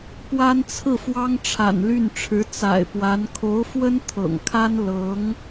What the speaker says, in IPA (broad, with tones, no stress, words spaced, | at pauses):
pwa˥nt͡sʰɹ̩˥˩fwɑ˥ŋ ʈ͡ʂʰa̰˨˩nly˥˩nʈ͡ʂʰɻ̩˧˥ t͡sa̰˨˩ɪ̯pwa˧˥n kʰo˧˥ʊ̯fwə˥n t̪ʰɤ̰˨˩ŋkʰa˥n lɤ˧˥ŋ